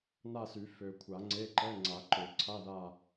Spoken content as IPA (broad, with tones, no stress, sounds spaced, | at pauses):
n a˦˨ s y˨˩˦ f ø˨ kʷʰ a˨˩˦ ŋ͡ǀ e˧˥˧ ǃ ɛ˧˥˧ ŋ͡ǀ a˨˩˦ ǃ ø˨˩˦ ǀʰ a˧˥˧ ð a˦˨